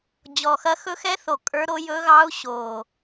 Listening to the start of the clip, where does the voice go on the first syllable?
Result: low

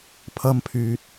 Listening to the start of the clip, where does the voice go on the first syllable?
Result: high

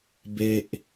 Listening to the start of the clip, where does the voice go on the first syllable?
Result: high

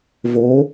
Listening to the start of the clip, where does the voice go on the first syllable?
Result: rising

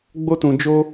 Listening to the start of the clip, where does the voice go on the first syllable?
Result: high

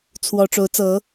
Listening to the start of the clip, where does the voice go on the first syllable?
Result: high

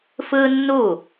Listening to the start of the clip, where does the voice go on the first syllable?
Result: high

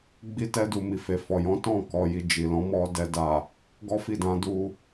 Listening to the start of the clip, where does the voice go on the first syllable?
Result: high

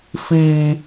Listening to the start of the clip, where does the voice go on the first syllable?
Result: high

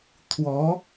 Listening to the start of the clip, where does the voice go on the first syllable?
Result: rising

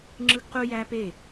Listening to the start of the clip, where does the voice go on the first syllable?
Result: high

